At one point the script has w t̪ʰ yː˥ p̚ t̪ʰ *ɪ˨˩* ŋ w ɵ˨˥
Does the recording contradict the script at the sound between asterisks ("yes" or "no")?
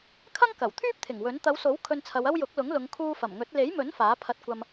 no